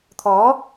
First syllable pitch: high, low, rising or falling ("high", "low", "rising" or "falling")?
rising